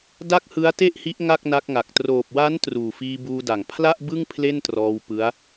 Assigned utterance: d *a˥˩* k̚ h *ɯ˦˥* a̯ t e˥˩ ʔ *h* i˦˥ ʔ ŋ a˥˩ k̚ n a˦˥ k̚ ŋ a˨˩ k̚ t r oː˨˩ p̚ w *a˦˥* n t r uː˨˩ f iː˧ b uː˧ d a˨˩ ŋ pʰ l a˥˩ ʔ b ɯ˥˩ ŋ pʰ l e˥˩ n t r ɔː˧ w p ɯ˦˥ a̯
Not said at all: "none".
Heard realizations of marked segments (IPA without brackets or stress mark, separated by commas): a˥˩, ɯ˦˥, h, a˦˥